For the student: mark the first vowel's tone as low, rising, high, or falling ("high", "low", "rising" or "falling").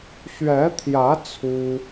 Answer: rising